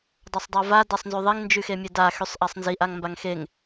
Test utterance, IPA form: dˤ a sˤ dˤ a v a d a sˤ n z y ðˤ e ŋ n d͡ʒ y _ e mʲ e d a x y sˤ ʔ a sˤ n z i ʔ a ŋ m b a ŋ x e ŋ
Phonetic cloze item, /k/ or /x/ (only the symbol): x